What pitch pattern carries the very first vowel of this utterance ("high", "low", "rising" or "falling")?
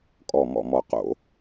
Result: low